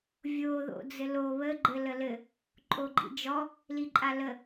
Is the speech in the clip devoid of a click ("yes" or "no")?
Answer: no